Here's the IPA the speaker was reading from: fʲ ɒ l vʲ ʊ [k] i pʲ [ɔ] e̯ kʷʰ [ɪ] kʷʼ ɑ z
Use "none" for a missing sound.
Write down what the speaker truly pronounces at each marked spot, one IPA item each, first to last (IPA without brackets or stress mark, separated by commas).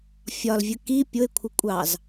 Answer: k, ʊ, ɪ